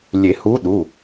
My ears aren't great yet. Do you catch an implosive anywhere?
yes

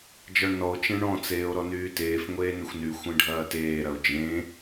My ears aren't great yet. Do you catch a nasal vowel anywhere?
yes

